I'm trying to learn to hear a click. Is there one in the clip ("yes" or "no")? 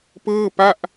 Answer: no